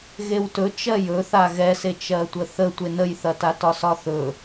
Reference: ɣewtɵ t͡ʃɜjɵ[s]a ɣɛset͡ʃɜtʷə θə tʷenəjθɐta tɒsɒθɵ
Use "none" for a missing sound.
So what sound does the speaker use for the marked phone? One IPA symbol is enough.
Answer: θ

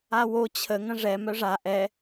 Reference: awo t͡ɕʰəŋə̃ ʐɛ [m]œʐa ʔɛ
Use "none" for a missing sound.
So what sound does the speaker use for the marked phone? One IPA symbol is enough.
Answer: m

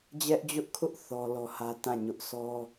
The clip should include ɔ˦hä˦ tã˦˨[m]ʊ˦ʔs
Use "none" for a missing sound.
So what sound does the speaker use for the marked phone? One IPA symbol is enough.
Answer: ɲ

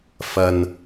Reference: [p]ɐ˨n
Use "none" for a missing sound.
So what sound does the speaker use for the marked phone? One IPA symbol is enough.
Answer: f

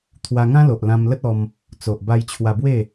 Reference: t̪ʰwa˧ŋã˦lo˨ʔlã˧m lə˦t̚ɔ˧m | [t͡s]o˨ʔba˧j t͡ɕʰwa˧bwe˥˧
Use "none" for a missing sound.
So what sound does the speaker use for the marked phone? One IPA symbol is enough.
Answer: t͡s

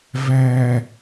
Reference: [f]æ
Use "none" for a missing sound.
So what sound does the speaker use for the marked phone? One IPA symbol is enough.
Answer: v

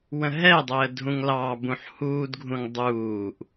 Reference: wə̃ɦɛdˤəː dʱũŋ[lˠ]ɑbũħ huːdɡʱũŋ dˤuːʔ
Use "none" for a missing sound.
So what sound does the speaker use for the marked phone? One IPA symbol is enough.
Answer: l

